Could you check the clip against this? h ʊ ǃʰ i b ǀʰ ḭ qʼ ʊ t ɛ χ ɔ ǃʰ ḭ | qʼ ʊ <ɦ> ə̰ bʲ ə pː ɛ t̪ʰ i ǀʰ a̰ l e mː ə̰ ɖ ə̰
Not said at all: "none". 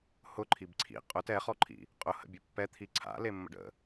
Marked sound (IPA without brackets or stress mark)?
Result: h